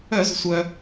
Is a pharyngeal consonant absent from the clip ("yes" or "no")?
yes